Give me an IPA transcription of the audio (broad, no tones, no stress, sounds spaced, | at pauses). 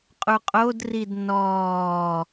qʼ u qʼ o d r i d n ɔː